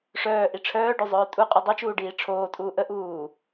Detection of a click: absent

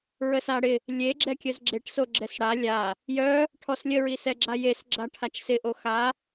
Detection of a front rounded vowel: present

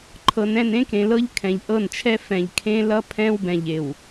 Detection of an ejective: absent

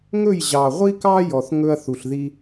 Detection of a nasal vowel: absent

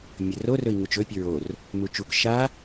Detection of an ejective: absent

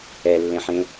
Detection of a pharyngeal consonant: present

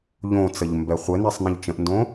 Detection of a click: absent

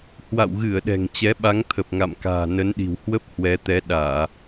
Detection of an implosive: present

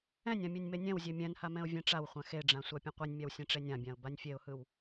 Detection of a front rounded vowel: absent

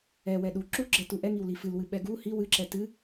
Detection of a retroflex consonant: absent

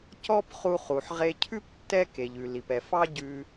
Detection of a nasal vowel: absent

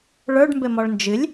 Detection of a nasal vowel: absent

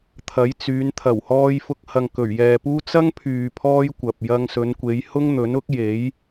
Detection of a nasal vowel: absent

